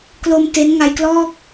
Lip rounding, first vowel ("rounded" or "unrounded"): rounded